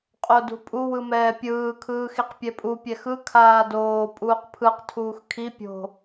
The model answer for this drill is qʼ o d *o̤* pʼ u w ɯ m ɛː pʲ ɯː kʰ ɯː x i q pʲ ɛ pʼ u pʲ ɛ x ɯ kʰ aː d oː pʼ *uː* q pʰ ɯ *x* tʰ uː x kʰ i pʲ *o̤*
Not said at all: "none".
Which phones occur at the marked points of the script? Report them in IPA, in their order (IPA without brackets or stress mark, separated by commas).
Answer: ṳ, uː, q, o̤